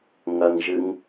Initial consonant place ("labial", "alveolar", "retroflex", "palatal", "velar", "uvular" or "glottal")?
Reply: velar